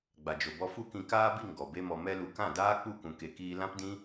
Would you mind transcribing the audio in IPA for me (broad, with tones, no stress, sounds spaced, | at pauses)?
ɡ͡b a˨ d͡ʒ o˨ b ɔ˧ f u˦ k ĩ˧ k aː˦ b i˦˨ ŋ ɡ ɔ˨ b e˦ m ɔ˧ m ɛ˧ l u˨ k ã˦˨ d aː˦ k͡p u˦˨ k ũ˨ k e˨ k iː˧ l ã˦ p d ĩ˦